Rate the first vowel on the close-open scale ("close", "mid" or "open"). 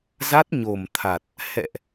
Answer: open